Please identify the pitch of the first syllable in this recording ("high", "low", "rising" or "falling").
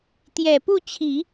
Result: low